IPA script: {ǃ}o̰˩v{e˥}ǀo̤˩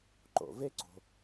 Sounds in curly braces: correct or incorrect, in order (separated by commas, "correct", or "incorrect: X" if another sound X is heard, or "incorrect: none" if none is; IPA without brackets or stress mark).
correct, correct